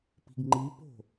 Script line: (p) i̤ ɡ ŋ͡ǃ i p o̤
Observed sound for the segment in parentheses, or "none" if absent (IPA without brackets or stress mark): p